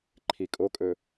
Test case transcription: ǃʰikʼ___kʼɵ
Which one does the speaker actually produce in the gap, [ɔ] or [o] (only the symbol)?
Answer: o